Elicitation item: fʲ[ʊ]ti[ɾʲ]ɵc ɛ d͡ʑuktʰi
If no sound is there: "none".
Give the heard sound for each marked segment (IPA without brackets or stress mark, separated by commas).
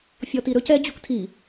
ɔ, ɾ